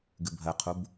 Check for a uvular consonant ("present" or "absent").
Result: present